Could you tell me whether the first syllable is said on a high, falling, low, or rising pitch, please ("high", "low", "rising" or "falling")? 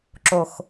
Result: low